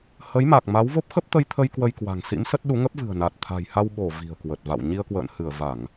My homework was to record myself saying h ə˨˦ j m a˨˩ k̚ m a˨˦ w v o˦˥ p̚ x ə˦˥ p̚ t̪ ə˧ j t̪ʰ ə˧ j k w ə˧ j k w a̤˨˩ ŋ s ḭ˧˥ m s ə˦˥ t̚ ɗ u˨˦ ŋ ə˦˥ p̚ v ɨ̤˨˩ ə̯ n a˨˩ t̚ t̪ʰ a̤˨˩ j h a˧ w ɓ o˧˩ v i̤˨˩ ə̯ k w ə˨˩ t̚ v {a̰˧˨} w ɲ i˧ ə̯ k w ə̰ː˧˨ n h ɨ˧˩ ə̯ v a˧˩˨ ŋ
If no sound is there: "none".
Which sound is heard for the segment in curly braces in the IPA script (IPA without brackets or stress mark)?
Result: a̰˧˨